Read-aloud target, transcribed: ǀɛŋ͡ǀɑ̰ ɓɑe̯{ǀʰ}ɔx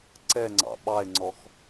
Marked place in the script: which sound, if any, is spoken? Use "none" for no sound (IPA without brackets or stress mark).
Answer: ŋ͡ǀ